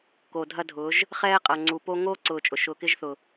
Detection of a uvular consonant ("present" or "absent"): present